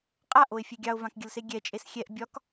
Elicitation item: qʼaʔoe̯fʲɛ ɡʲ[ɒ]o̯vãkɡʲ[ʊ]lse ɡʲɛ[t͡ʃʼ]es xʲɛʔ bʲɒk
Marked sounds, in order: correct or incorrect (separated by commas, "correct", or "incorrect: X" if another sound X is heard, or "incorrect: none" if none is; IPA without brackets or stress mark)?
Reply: incorrect: ɑ, incorrect: ə, correct